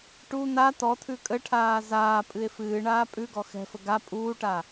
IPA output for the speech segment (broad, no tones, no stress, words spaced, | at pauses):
ʈu n̪a t̪ɔt̪ʰʉ kʼəʈʰaː zaːpʼɨe̯ fɨːɳaː pʼʉɡɔ xɛ̤fə ɡa pʼuːʈa